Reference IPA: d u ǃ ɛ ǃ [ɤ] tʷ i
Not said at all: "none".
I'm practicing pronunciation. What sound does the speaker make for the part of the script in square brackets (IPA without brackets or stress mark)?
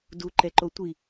o